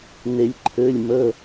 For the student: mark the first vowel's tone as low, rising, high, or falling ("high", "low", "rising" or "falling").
low